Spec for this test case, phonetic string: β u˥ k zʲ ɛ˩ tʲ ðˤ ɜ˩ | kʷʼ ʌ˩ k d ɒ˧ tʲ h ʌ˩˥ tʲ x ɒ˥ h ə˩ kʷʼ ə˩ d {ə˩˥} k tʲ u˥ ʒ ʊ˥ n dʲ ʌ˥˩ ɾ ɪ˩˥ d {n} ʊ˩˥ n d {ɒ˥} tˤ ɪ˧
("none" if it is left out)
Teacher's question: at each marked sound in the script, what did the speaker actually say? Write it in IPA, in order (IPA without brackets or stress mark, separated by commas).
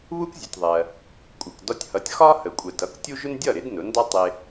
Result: ʌ˩˥, n, ɒ˥